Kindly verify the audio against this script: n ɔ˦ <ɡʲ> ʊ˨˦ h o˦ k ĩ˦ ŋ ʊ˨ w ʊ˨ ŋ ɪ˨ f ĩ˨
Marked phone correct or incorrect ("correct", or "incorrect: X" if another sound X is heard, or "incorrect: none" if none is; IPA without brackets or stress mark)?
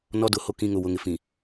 incorrect: d